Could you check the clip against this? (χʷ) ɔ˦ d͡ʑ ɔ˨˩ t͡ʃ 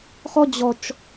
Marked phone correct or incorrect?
incorrect